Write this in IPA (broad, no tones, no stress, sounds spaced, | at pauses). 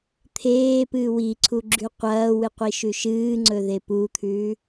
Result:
t̪ʰ eː p ɨː w i ǀʰ u ɡ͡ǁ ʉ qʷ ɐː w ɨ qʷ i ʃ ʉ ʃ ɨː ŋ͡ǀ ɵ ð e p u t̪ʰ ʉː